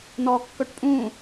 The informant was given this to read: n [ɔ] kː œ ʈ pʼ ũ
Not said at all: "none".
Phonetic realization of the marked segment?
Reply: ɔ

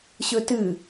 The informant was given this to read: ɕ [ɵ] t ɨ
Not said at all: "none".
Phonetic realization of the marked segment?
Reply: ɵ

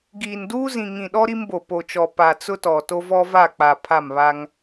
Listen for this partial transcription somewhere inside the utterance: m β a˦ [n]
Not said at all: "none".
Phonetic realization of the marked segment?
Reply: ŋ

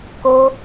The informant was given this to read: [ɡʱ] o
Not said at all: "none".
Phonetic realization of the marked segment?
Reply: k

